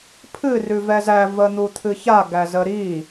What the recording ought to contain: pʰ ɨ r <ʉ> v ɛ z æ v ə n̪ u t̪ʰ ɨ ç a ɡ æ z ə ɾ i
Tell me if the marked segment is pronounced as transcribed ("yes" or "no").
yes